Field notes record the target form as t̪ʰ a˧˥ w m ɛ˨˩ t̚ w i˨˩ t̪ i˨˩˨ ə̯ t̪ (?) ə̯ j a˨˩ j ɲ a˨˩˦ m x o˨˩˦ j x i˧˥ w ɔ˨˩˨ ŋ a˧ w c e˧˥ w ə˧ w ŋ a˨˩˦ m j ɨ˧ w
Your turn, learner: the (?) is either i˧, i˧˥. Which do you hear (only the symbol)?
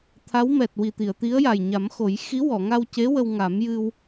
i˧˥